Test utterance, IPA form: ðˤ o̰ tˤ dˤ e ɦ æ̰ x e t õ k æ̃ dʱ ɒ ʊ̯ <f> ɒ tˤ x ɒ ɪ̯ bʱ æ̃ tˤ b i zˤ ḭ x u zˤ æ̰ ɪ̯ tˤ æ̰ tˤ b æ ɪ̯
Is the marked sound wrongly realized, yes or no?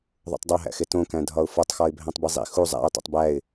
no